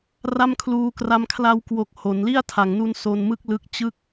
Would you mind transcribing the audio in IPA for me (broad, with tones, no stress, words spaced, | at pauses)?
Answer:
ra˥˩mkʰluː˧kra˦˥m kʰla˧wkwo˨˩k̚ ho˩˦nli˥˩a̯tʰa˩˦ŋnu˧n so˧nmɯ˥˩k̚ lɯ˦˥k̚ t͡ɕɯ˦˥k̚